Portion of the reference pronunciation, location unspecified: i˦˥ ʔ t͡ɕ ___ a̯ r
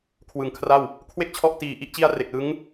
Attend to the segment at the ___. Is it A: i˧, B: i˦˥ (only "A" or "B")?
B